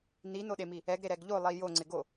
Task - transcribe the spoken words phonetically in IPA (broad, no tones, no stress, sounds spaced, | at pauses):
n̪ i n̪ o ɗ e m i | ɛ ɡ ɾ e ɾ ɛ ɡ ʎ o lˠ i j o ŋ͡ǀ ɪ ɡ o